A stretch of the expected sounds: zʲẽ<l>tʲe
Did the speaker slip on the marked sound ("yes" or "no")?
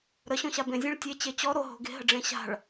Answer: yes